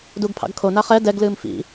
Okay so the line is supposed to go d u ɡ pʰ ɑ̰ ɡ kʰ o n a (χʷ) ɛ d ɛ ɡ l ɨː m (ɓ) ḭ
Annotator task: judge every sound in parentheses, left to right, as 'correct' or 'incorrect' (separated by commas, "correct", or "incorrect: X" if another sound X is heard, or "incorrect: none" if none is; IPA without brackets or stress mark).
incorrect: χ, incorrect: f